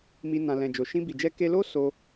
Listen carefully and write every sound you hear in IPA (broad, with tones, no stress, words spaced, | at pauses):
mi˧ nã˨lɛ̃˨ d͡ʒo˨ʃĩ˧bi˨d͡ʒɛ˧ ke˧lo˦ so˧